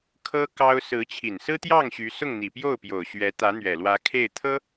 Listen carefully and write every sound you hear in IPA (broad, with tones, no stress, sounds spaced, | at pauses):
kʰ ɤ˥ k ɑ˥ ʊ̯ s ɹ̩˧˥ t͡ɕʰ i˨˩ n s ɹ̩˥ t̪ j ɑ˥˩ ŋ ɕ y˧˥ s ʊ˥˩ ŋ n̪ i˨˩ p j o˥˩ ʊ̯ p j o˨˩ ʊ̯ ɕ ɥ ɛ˧˥ t̪ ä˧˥ n̪ ɥ ɛ˨˩ l w ä˧˥ kʰ e˥˩ ɪ̯ t̪ʰ ɤ˥